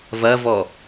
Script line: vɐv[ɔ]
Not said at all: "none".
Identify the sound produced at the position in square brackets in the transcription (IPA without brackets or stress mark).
ɔ